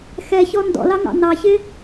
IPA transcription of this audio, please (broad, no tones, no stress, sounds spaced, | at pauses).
x ɛ ç ɔ n d ɔ̰ l ɑ ŋ ɑ̰ n ɑ ç ɪ